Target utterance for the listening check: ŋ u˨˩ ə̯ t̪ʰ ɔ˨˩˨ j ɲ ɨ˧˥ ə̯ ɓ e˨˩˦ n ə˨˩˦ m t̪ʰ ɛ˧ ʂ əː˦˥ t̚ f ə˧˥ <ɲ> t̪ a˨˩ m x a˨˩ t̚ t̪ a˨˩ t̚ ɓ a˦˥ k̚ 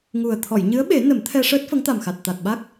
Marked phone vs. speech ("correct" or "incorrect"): incorrect